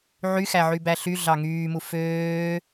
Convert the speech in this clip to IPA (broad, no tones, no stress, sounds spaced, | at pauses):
ʕ y x æ ʕ y b æ ɬ y ɮ ɑ ŋ yː m u f øː